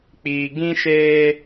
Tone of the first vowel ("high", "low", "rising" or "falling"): low